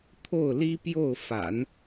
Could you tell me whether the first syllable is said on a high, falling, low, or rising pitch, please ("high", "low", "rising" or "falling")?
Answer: falling